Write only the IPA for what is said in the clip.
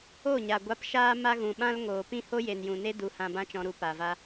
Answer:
o˦˨ɲa˨ ɡʷa˨˦pʃaː˧ma˧ ɣũ˨ɓã˦l ŋoː˨pĩ˦ho˦ je˨njũ˨ne˦ du˨˦hã˧bã˦t͡ʃɔ̃˧ ɾu˧ pa˨va˧

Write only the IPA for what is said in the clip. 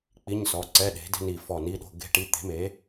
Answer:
k͡pi˧˥˧ɲsɔ˩˧˩ ǀɛ˧˥˧ɗe̤˨˥de̤˥ni˧˩ fɔ˧˩ni˧˥˧ ɗo̤˧˥˧ɡe̤˥ʈi˧˥˧ t̪e̤˨˥me˨˥

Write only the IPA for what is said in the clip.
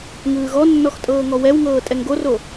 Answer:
ŋɯːɣɔnːɔx tʼɤːŋɔwɛwŋɤː tʼɛŋɡoro

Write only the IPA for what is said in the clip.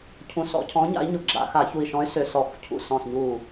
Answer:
cʰũ˧˩sɔ̰˧˩˧cʰɔ̃˨˥ɲa̰˨˥i̯ ɲʊ˧˩ɡ͡ǁa̰˧˩˧ xa˧˩˧çu˧˩i̯ʃɔ̃˨˥y̯ sʏ˧˩sɔ˧˩˧xcʰṵ˧˩ sɔ̃˧˩sɲu˧˩

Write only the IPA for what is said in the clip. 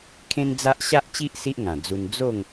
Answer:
kʰẽ˦nd͡za˦ʔ ɕa˦ʔt͡ɕi˦ʔ si˦ʔŋã˨˩d͡zu˧n d͡zo˥˧ŋ

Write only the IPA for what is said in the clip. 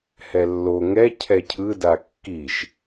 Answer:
hɛlːo ŋɛ cʰɛcʰɯ dakːiʃ

